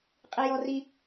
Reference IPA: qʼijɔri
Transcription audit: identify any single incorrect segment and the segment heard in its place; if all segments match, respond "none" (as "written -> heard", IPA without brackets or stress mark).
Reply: none